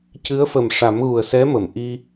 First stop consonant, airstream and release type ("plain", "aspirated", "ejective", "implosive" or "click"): plain